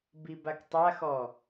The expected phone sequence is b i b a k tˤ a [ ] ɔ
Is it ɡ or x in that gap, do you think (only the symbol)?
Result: x